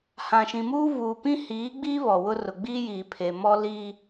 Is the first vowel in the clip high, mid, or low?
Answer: low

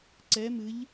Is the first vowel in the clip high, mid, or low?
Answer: mid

